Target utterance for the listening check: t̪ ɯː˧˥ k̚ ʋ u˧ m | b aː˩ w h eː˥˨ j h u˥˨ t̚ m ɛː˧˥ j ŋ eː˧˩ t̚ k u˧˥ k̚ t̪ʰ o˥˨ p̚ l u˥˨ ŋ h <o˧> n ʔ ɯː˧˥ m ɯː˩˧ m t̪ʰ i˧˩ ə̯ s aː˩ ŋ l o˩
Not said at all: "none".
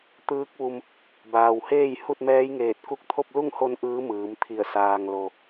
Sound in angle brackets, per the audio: o˧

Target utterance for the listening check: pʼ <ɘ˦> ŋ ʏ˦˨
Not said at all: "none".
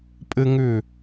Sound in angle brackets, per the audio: ɘ˦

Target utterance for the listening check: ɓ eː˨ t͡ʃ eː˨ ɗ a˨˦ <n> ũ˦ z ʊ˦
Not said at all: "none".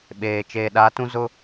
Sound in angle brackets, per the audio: t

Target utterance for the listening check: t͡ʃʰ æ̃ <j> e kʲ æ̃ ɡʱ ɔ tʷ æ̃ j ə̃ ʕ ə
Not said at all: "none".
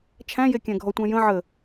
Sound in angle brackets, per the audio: j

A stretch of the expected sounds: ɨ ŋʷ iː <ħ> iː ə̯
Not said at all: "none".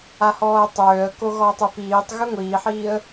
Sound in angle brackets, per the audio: ħ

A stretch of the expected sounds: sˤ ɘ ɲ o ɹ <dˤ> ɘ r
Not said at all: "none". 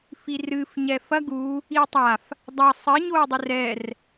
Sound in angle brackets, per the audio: dˤ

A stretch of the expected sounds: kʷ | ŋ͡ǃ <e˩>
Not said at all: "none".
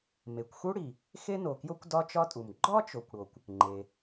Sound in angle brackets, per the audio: e˩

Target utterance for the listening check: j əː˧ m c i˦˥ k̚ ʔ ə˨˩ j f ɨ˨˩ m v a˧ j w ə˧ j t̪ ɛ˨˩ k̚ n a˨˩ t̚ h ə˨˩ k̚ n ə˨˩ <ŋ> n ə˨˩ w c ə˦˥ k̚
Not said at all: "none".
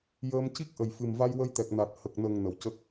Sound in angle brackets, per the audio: ŋ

